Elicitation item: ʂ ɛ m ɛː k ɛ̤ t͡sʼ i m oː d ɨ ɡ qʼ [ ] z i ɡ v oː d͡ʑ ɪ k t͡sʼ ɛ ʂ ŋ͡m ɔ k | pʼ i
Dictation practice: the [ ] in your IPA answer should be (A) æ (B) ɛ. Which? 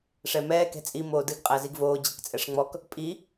A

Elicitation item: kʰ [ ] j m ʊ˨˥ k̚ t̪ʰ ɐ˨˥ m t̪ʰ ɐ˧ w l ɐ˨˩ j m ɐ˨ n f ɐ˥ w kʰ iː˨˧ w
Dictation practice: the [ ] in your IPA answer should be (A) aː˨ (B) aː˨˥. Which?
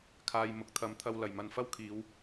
A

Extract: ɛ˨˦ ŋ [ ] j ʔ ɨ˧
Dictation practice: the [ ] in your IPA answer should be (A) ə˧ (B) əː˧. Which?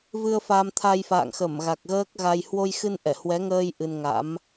B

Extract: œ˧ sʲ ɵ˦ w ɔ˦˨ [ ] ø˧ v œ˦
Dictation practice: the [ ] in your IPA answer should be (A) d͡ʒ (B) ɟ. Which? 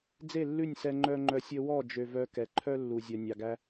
A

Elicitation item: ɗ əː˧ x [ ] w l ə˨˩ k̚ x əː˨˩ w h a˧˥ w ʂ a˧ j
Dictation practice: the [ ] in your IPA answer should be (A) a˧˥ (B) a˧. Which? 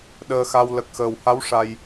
B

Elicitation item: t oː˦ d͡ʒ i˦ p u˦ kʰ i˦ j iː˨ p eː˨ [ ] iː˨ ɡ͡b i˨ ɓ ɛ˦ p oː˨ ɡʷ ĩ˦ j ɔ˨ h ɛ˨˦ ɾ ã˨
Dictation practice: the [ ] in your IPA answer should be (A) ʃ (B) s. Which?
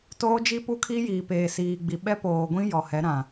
B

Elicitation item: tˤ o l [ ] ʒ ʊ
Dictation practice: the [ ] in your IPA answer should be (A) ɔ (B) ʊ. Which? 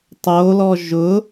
A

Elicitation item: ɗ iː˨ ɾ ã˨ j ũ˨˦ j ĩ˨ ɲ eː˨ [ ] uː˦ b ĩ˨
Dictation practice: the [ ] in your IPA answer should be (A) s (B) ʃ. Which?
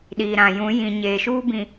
B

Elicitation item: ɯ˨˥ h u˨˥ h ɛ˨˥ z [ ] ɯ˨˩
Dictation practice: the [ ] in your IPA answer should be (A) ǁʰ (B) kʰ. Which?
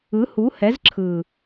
A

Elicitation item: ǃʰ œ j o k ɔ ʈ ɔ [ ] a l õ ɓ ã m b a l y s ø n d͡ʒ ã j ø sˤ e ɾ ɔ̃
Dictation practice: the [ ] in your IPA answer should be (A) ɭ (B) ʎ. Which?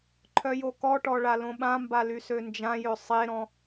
A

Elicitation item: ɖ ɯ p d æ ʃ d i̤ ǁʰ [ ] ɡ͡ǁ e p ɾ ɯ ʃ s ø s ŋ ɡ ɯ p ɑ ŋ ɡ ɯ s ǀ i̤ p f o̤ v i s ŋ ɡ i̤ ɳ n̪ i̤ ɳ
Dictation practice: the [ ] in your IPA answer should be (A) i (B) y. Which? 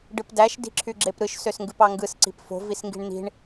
B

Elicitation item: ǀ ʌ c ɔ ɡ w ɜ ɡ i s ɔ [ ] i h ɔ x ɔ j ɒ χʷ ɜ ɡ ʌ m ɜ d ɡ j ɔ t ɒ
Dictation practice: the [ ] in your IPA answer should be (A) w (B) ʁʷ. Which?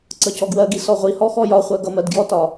B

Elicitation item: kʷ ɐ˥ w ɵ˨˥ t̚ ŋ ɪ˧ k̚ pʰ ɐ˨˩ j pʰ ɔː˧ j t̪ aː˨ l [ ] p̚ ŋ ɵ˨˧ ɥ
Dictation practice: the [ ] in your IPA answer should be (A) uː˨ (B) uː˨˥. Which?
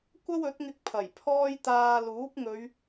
B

